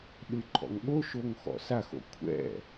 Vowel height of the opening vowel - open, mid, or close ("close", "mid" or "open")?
close